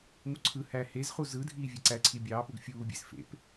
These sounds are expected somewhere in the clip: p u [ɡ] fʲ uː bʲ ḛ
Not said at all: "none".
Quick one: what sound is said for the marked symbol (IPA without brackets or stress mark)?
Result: ɡ